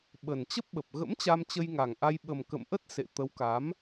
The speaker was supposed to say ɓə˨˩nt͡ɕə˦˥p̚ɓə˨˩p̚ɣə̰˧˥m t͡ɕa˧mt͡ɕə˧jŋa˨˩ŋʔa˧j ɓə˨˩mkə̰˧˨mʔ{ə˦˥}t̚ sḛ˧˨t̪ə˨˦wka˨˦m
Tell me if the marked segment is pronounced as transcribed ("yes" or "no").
yes